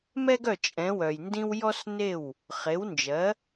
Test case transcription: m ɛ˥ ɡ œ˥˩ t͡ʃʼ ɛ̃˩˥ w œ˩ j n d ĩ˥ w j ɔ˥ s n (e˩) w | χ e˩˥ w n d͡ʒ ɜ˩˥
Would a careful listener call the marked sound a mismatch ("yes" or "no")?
yes